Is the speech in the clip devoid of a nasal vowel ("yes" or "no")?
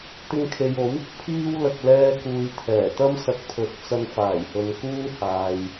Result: yes